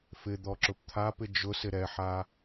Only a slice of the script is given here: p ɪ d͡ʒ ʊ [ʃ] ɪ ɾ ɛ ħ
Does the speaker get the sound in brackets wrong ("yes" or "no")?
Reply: yes